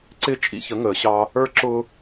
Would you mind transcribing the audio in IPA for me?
ǀ ɪː˦ t͡ʃʼ ḭ˦ ç ə˨˦ ŋ əː˨ ɕ ɑ˦ | ə˞˦ ǁ ʊː˦

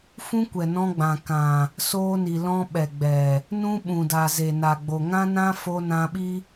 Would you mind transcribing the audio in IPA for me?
f ũ˦ kʷ ɛ˨ n ɔ̃˧ ɡ͡b ã˨ k ã˨ | s oː˧ n i˨ l ɔ̃˧ ɓ ɛ˨ ɡ͡b ɛ˨ | n ũ˦ ɓ ũ˨ d a˨ z e˨ n a˨ ɡ͡b o˨ ŋ ã˦ n ã˦ f o˧ n ã˧ ɓ i˦

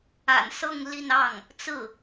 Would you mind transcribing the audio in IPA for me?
a̰˨˩ n s ɤ˥˧ ŋ l i˥˧ n ɑ˥˩ ŋ | t͡s ɹ̩˥˩

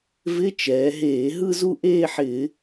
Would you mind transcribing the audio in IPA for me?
v ɪ˧˥˧ t͡ʃ ɛː˩˧ ɦ eː˧˩˧ ɦ ɯ˥˧ z u˥˧ ʔ eː˥˧ ħ ɪː˧˩˧

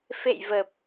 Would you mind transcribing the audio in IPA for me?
f ḛ˧˨ j v ə˨˩ p̚

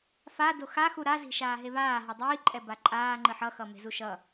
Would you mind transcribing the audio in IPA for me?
f a d o x a x u ɾ a z i̤ ʃ aː ɦ e β aː ɦ ʌ dˤ iː ǃʼ ɛ b a ǃʼ aː ŋ͡ǃ ɯ ħ ʌ x ʌ m e̤ z u ʃ ʌ

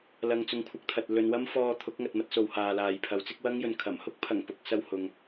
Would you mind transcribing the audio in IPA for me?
l ɐ˨ ŋ t͡s ʊ˨˧ ŋ kʷʰ ɐ˨ k̚ t̪ʰ ɐ˨ t̚ l ɵ˨˧ n w ɐ˥ m f ɔː˧ t̪ʰ ʊ˨˥ k̚ ŋ ɐ˨ t̚ m ɐ˧ t̚ s o˨ w h aː˨ l aː˨ j pʰ ɐ˨˥ w t͡s ɪ˥ k̚ w ɐ˥ ŋ j ɵ˨˧ n kʰ ɐ˨˩ m h ʊ˥ k̚ pʰ ɐ˨˩ ŋ p ʊ˨˥ k̚ s ɐ˧ w h ʊ˨ ŋ

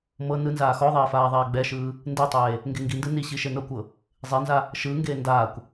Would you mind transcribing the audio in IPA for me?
m ɤ n ɯ n z aː x ɔ ðˤ eː f aː ðˤ ɛː ɡ͡b ɛ ʃ ɯː | n d e tˤ eː | ŋ ɡ e ŋ ɡ i n d ɯ n i ɕ i ʃ e n ɤ kʷ ɤ | zˤ e n z a | ʃ ɯː ŋ ɡ eː n d aː kʷ

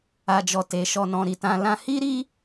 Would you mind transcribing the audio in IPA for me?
a˨ d͡ʒ ɔ˨ t e˨˦ ʃ ɔ˧ n ɔ̃˧ ɾ i˨ t ã˧ l ã˦ h i˦ ɾ i˦

